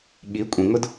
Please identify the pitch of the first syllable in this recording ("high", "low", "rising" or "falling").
rising